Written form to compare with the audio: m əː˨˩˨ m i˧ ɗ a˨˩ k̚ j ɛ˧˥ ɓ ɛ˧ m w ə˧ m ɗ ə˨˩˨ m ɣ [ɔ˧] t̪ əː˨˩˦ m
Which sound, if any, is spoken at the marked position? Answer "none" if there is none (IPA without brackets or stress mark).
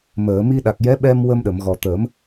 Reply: ɔ˨˩